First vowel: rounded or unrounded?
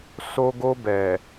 rounded